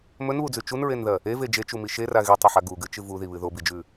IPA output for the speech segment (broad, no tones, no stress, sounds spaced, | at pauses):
m ɵ n β u d͡z ʉ t͡ʃ u n ɹ e n ð ɐ | e v e d͡ʒ e t͡ʃ u m i ʃ e r a ɣ i tˤ ɐ ħ a ɡ u ɡ ɨ t͡ʃ ɨ v u ð i β ɨ ð o b i d͡ʒ ʉ